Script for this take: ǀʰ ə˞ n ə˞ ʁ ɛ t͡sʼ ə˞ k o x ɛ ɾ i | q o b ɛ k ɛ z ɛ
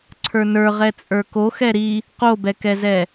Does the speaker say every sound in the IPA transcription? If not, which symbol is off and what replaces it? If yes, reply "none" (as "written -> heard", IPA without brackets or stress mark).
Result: none